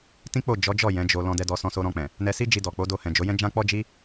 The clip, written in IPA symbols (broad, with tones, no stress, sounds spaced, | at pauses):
t ĩ˦ k͡p o˦˨ d͡ʒ ɔ˨˦ d͡ʒ ɔ˦˨ j ɛ̃˨˦ d͡ʒ o˧ l ɔ̃˧ d ɛ˧ d ɔ˧ s ɔ̃˧ s o˧ ɾ ɔ̃˧ k͡p ɛ̃˨ | n ɛ˧ s i˦ d͡ʒ i˧ d ɔ˨ k͡p o˨˦ d o˧ h ɛ̃˨ d͡ʒ o˨˦ j ɛ̃˦ d͡ʒ ã˦ k͡p ɔ˦ d͡ʒ i˦